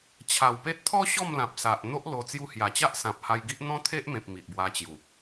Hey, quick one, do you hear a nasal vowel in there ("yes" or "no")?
yes